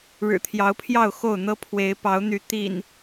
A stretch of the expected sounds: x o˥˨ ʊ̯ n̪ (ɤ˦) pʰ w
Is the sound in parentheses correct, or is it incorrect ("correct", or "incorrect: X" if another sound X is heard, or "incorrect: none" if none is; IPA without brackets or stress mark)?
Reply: correct